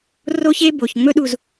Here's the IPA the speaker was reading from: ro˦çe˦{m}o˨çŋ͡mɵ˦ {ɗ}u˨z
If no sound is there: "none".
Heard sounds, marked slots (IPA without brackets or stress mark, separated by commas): b, ɗ